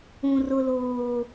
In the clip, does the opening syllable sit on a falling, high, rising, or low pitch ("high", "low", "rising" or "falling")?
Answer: high